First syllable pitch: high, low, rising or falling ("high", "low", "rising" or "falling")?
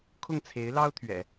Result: falling